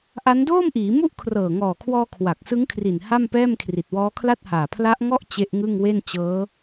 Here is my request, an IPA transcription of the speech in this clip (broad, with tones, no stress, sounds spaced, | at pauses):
ʔ a˦˥ n d oː˥˩ m ʔ iː˩˦ m u˥˩ ʔ kʰ r ɤː˨˩ ŋ ɔː˨˩ kʰ w ɔː˧ kʰ w a˨˩ k̚ s ɯ˦˥ ŋ kʰ r i˨˩ n h a˥˩ m p ɛː˥˩ m kʰ r i˨˩ t̚ w ɔː˦˥ kʰ l a˥˩ t̚ h aː˨˩ pʰ l a˦˥ ʔ ŋ ɔ˥˩ ʔ t͡ɕ e˦˥ ʔ ŋ ɯ˥˩ ŋ w e˥˩ n t͡ɕ ɤː˦˥